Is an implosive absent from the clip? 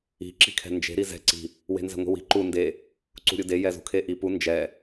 yes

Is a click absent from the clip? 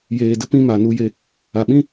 yes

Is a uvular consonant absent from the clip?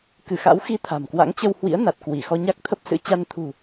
yes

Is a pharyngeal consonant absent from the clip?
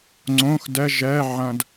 no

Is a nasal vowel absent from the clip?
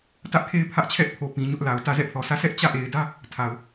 no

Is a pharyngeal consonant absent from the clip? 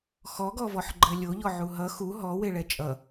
no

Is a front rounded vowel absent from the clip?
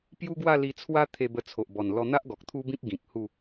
yes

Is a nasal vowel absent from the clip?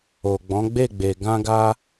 no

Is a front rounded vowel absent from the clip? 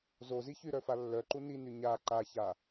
no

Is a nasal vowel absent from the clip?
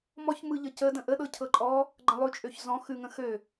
no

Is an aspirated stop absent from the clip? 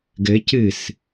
yes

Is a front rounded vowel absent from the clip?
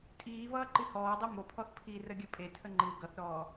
yes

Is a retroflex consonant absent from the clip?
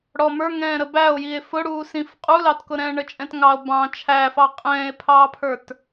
no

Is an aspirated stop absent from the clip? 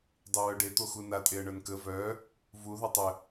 yes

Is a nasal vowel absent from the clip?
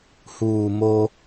yes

